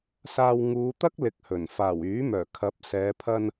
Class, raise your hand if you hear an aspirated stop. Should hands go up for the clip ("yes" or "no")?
yes